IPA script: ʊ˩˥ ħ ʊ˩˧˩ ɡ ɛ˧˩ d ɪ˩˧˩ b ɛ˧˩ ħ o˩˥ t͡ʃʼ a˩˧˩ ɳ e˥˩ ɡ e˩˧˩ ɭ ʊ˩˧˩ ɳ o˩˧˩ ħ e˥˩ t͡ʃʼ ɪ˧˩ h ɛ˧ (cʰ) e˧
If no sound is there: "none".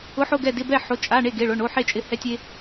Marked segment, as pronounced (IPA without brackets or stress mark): tʲ